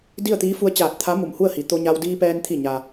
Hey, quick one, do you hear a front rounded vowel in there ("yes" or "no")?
no